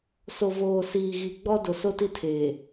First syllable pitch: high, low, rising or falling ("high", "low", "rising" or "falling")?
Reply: low